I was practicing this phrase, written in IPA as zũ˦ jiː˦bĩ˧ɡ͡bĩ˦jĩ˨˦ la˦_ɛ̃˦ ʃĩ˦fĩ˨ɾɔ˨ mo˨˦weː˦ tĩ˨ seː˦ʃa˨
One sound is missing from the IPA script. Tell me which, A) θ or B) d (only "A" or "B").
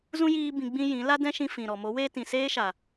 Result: B